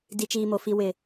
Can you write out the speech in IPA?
d i˨ t͡ʃ iː˨ m o˨ f i˨ w ɪ˨

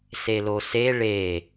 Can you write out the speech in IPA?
s e l o s e ɭ e

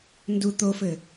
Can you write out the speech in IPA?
n d u t̪ o f ɘ

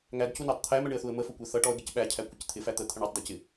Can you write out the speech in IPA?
ŋ æ d c u n æ tˤ t̪ʰ æ m ɛ ɳ ɪ ə̯ θ u ə̯ m ə f ʊ kʷ ɛ θ ʌ ʈ ɔ ə̯ ɡ ɪ c ɓ æ cʰ æ kʷ ɪ c t̪ʰ ɪ f æ t̪ ə t̪ʰ ə ɳ ɔ tˤ d æ c ɪ

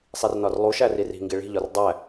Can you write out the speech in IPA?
sˤ i r n ɒ r lˠ u ʃ æ r i r i̤ ŋ ɡ i ɭ i̤ ʎ ɒ r dˤ æ

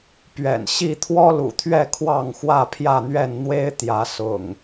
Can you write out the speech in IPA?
p ɥ ɛ̰˨˩ n ɕ i˥˨ t̪ʰ w ɔ˦ l ṵ˨˩ t̪ʰ ɥ ɛ˥˨ kʰ w ɑ˥˨ ŋ x w ä˥˨ pʰ j ä˥˨ n̪ ɥ ɛ˥˨ n n̪ w e˦ ɪ̯ t̪ j ä˨˦ s ʊ̰˨˩ ŋ

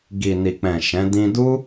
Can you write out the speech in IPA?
ɡ i˨ n i˨ k͡p ɛ̃˨ ʃ ɛ̃˨˦ d ĩ˧ d u˦

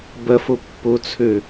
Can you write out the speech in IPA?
b ə f u pː u t͡sʰ ʉ

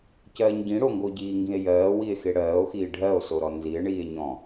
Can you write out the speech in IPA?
c ɜː ɲ ɟ ĩ ɽ o ŋ ɡ o ɟ iː ŋ ɡ ĩ e̯ j ɜː w i e̯ x e ɽ ɜː o̯ x iː ɖʱ ɜ o̯ s o ɾ ɔ n z i e̯ ɳ iː e̯ ɲ ɔ̃

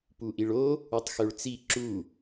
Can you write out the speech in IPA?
p u ʔ i ɭ o | u tˤ x ø ɭ t͡s i ǁ u

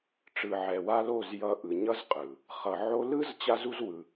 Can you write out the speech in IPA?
ʈ͡ʂ ɯ˨ ʕ ɛ˨ w a˦ l o˦˨ z j ʌ˧ ʔ ɯ˨ ɲ ʌ˦ z qʼ ɯ˨ | χ ʌ˨ ʕ o˧ l ɯ˦ z t͡ɕ a˦ z u˦ z w ɯ˧

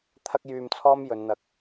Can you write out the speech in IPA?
t̪ʰ ɐ˥ k̚ j yː˧ m t͡sʰ ɔː˥ m j ɵ˨˧ n n̪ ɐ˧ k̚

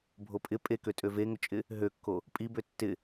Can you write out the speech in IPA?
bʱ o pʼ ɪ pʼ e k ø tʼ ø v e ŋ ʏ t͡ʃʼ ɪ | ɦ ø kː o | pʼ i b ø tː ɪ

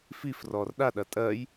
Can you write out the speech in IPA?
f i f r ɔ r ɗ a ɗ ɐ tʼ ɜ j

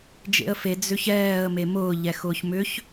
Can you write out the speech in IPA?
d͡ʒ ḛ ə̯ f e d͡z ʏ ç ɛː ə̯ m e m ʊː ʎ ɛ x ʊː ç m ʏ ç

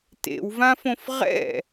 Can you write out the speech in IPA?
t ḛ w v ã f õ f ʁ ɛ̰

